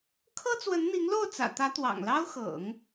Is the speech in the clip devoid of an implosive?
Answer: yes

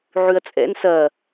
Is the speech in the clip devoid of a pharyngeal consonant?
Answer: no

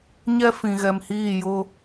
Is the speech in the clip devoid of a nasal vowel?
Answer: no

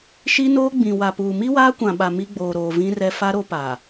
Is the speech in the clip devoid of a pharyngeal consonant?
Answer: yes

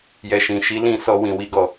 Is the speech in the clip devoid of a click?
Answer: yes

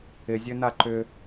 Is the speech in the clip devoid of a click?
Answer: no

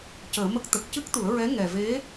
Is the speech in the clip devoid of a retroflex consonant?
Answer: yes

